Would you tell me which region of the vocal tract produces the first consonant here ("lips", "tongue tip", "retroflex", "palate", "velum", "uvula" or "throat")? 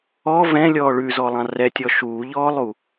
lips